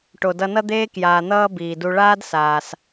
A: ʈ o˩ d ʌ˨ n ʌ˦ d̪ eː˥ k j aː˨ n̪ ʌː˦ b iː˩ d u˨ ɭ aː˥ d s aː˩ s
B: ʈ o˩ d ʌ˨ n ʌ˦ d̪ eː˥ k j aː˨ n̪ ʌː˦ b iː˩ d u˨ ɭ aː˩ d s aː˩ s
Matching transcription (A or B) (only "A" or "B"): A